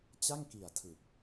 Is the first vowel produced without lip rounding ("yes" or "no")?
yes